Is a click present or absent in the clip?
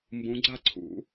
present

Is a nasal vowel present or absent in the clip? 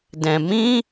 present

